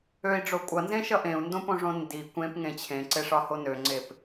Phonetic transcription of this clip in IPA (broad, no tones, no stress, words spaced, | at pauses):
øi̯ɖ͡ʐo kʷʼʌnzẽʃʌ ʔẽu̯ndõpõʐõ ndi kʷẽpŋẽ t͡ɕʰẽǀeʂɒho nøŋ͡ǀep